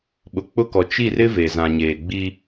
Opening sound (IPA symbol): ɓ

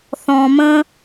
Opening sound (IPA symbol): θ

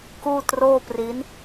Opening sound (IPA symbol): k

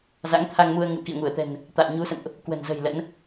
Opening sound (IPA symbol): z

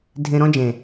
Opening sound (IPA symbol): dʱ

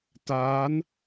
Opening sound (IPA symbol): t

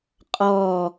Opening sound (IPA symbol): qʼ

